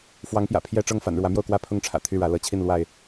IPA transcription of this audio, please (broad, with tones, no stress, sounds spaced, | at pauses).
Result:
f w ɑ˨˦ ŋ p j ä̰˨˩ pʰ j ɛ˥˨ ʈ͡ʂ ɤ˥˨ ŋ f a̰˨˩ n ɻ w ä˨˦ m j o˥˨ ʊ̯ k w ä˥˨ pʰ ʊ˦ ŋ ʈ͡ʂʰ ä̰˨˩ t̪ʰ y˥˨ ɻ ä˨˦ l ɤ˨˦ t͡ɕʰ i˥˨ n l w a˥˨ ɪ̯